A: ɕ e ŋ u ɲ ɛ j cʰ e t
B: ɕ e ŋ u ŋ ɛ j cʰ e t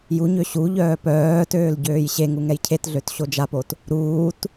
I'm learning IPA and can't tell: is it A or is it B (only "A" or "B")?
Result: B